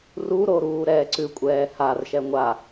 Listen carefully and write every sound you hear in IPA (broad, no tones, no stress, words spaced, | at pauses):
ruɾo ɾuːɾɛːǀʉkʷʼɛː harʃɛ ŋʷa